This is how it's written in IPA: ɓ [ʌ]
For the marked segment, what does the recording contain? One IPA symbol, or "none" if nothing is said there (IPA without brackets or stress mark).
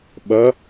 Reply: ʌ